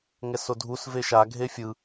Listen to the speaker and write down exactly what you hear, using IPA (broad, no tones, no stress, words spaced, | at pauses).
ŋɛsodʱus veʃa ɡʱefʲɯ